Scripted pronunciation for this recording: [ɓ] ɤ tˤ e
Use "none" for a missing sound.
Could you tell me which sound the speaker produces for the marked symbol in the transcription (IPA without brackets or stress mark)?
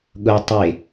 ɠ